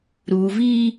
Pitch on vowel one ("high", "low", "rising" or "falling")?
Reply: low